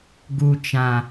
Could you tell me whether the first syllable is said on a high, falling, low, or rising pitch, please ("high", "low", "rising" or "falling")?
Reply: low